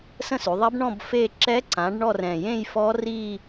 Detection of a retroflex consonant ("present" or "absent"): present